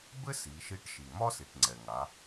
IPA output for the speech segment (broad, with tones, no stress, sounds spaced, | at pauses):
b ɘ˥ s i˩˧ ʃ i˧˥ ʈ ʃ i˩ m ɒ˥ s i˩ ʈ ŋ͡ǀ ɛ˩ ŋ a˩˧